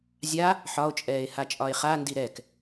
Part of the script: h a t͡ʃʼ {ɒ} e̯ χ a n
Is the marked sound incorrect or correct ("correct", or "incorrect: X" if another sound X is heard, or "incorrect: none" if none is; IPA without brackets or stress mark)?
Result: correct